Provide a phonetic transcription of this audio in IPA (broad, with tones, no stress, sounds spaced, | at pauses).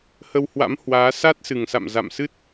h ə˧ w h w a̰˧˥ m h w aː˨˦ s a˦˥ t̚ s ɨ˨˩ ŋ s a̰˧˨ m z a̰˧˨ m s ɨ˦˥ t̚